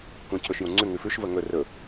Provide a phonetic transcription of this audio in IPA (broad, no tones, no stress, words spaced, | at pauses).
kʷẽcʰɵʃjũŋ͡ǀʉ ŋʉfʉʃ vəŋɵ rɵ